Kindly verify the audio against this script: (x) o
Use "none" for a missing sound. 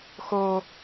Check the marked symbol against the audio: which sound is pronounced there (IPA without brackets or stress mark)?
x